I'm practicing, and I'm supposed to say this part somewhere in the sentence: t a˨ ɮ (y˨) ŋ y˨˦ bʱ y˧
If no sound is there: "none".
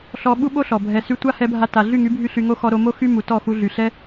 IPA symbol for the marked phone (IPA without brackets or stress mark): y˦˨